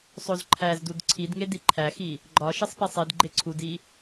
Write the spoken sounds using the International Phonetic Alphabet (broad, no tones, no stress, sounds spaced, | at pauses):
sˤ o z ǃʰ æ z d u d ǀʰ i d ŋ e d i ǃʰ æ x i | ɡ͡ǃ ɒ ʃ i sˤ p i sˤ i d ɡ͡ǃ e ǀʰ u d i